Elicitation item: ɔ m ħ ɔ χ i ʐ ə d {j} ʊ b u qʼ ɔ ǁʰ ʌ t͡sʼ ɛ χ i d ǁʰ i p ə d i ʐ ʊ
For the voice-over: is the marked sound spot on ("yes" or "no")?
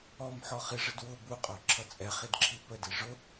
no